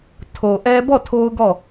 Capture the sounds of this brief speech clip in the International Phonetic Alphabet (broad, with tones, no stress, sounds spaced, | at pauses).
tʰ o˨ ʔ ɛ˦ b ɔ˦˨ tʰ o˦ ʊ̯ ɡ ɔ˦˨